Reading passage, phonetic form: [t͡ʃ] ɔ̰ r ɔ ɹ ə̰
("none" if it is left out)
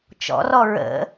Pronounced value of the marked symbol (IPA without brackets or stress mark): t͡ʃ